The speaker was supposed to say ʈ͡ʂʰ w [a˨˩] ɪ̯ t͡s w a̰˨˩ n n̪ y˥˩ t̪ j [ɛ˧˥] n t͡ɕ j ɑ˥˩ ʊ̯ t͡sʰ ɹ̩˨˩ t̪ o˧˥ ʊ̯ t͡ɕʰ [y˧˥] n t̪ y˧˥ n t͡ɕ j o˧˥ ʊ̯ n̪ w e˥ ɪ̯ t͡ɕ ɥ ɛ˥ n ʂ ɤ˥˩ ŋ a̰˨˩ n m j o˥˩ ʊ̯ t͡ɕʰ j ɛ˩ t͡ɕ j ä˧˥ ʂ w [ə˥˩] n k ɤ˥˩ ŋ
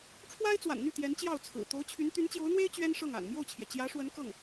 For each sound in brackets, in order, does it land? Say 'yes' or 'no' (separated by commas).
no, yes, yes, no